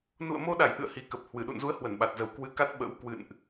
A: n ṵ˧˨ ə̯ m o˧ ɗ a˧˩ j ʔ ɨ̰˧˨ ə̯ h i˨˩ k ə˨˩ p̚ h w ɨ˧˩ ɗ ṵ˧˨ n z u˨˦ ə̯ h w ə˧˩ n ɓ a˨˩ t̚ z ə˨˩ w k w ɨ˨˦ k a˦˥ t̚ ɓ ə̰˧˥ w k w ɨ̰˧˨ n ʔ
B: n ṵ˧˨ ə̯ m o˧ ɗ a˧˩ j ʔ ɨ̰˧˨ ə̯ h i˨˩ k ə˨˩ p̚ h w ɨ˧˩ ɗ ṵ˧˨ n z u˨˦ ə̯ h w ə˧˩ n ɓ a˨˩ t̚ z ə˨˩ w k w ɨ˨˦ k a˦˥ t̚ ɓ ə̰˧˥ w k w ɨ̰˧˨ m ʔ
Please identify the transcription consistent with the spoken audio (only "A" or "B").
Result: A